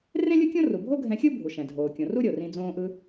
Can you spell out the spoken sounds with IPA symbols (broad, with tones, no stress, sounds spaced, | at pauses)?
r ẽ˥ lʲ ɯ˥ kʲ õ˥ r u˩ bʱ o˥ ɡʱ ɛ̃˧ xʲ ɯ˥ bʱ u˩ ʃ ɛ̃˩ dʱ oː˩ kʲ õ˩ r u˥ ɾʲ o˩ r ĩ˧ d͡z õː˧ ʔ ɯ˧